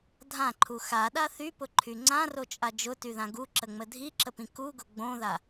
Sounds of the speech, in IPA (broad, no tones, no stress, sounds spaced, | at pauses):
dʱ ã ǃʰ u x a ɗ a θ y p ʊ ǃʰ y ŋ͡ǀ ã r o t͡ʃʼ a d͡ʒ ʊ t y ð ã ɡ u ǁ ə ŋ͡m ə dʱ i ǁ ə p ĩ k u ɡ ʊ ɡ͡b õ ð a